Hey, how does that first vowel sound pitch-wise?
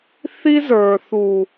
high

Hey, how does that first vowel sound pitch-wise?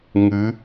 rising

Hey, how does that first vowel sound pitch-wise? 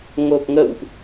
low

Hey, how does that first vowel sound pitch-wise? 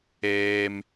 high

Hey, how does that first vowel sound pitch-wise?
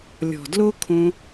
low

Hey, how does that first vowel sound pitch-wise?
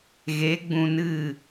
rising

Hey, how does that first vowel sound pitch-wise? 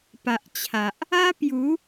low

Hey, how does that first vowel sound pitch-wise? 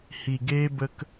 low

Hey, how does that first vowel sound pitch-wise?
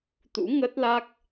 rising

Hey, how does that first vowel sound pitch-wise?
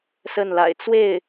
falling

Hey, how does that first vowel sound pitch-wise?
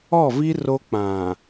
falling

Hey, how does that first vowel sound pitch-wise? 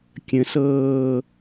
rising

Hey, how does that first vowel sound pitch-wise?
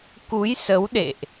rising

